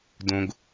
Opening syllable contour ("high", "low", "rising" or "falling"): low